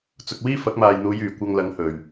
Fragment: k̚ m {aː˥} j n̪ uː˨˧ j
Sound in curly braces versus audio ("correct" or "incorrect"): incorrect